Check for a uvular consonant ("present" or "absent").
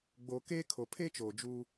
absent